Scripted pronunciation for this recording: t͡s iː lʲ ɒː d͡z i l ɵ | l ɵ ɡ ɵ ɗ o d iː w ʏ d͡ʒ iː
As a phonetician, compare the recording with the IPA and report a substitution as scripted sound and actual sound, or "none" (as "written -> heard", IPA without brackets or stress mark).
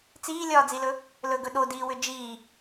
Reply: none